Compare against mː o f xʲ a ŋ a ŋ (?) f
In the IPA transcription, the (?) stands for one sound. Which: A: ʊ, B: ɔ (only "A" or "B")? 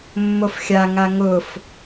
A